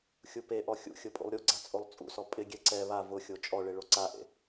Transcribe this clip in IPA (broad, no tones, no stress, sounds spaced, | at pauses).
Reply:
xʲ u p e ʔ ɔ xʲ ṵ xʲ ʊ pʼ ṵ lˠ ɾʲ u ɡ͡ǀ a t͡sʼ o lˠ t͡sʼ ṵ s ɔ pʼ ɪ ɡʲ ɛ ǀ ɛ β a v ʊ xʲ o t͡ʃʼ ɔ ɭ ɪ ɭ o ǀ a ʔ ḛ